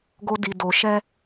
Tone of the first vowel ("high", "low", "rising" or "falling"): high